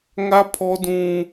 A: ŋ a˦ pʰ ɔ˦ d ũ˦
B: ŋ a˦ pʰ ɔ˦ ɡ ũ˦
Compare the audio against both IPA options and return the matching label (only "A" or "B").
A